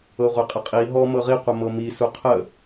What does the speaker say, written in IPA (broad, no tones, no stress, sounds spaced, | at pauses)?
ɤ ʁʷ e qʼ ə qʼ i ɦ ɔ m ɤ ʁ i qʷ ə m ɤ m i s u qʰ ə